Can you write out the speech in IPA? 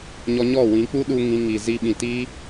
ɲ ɔ˧ ɲ ɔ˦˨ w ĩ˨˦ k͡p u˦ ɗ u˧ ŋ ĩ˧ ŋ i˨ z i˧ ɓ ĩ˨ t iː˦

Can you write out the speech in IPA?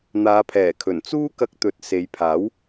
n̪ aː˨˧ pʰ ɛː˨˩ kʰ ɵ˨˩ n t͡s uː˥ k ɐ˧ k̚ t̪ ɵ˨ t̚ s e˨˧ j pʰ aː˨˥ w

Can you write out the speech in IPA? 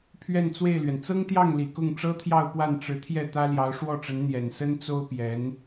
pʰ ɥ ɛ˥˧ n t͡s w e˥˩ ɪ̯ l ɥ ɛ˩ n t͡s ɤ˥ ŋ t̪ j ɑ˥˩ ŋ l i˨˩ k ʊ˥˩ ŋ ʈ͡ʂ ɤ˥ t̪ʰ j ɑ˥˧ ʊ̯ p w a˥˩ n ʈ͡ʂ ɻ̩˧˥ t̪ʰ j ɛ˥˩ t̪ ä˥ l j ɑ˧˥ ʊ̯ ʂ w ɔ˥˩ ʈ͡ʂ ə˧˥ n n̪ j ɛ˨˩ n s ə˥ n t͡s o˥ ʊ̯ p j ɛ˧˥ n

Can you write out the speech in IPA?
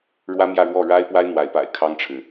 ɻ w ä˥ m j ä˥˧ ɻ w ɔ˥˩ ɻ a˥ ɪ̯ p w a˥ ɪ̯ n̪ w a˧˥ ɪ̯ p a̰˨˩ ɪ̯ kʰ ɑ˥ ŋ ʈ͡ʂʰ ɻ̩˨

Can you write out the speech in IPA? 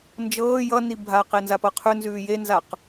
n d͡ʒ ɤː j ʌ n i bʱ a q e n z a p ɤ qʰ ʉ n z ʉː j e n z a q

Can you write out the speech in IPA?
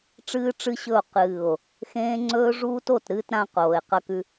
ʈ͡ʂ ɨː˦ ʈ͡ʂ ɨ˦ ɕ ɵ˦˨ o̯ q ɨː˦˨ o̯ | x ẽː˦ ŋ͡ǀ ɵː˦ ʐ uː˦ t o˦˨ t ɾ ɨː˦ t ɾ ã˦ q oː˨ e̯ q ɐ˦ k ʉ˦

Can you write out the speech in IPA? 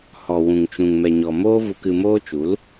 h ɔ˨ w ũ˨ ŋ t͡ʃ ũ˨ ŋ m ɛ˨ ɲ ɔ˨ m oː˦ v u˧ k ɨ˧ m oː˦ t͡ʃ u˨˦ l

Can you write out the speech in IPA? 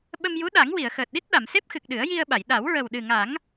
ɓ ə˧ m j u˧˥ ɗ a˨˩˦ ŋ w i˨˩˨ ə̯ x əː˨˩ t̚ ɗ i˦˥ t̚ ɗ a˨˩˨ m s e˦˥ p̚ x ɨ˨˩ k̚ ɗ ɨ˨˩˦ ə̯ j i˧ ə̯ ɓ a˨˩˨ j ɗ a˨˩˦ w ɹ ə˨˩ w ɗ ɨ˨˩ ŋ a˨˩˦ ŋ

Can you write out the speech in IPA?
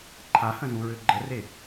ǃʰ a h ə̃ z ũ ɹ ø ɡ͡ǃ ə r e

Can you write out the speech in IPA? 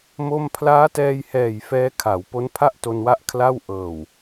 m o˥˩ m pʰ l aː˦˥ t ɛː˧ j h ɛː˨˩ j f ɛː˦˥ kʰ a˩˦ w p o˦˥ n pʰ a˥˩ ʔ t o˧ n w a˦˥ ʔ kʰ l a˥˩ w ʔ ɤː˨˩ w

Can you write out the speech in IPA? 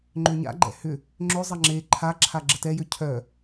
ŋ͡ǃ ø ɲ a̰ ɡ͡ǃ ɛ̰ h ʏ | ŋ͡ǁ ʏ zˤ ɐ ŋ͡ǁ e ǃʰ a ǁʰ a ɡ͡ǁ ə t ɛ j ø cʰ œ

